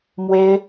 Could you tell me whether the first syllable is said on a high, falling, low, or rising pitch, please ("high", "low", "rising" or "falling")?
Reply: high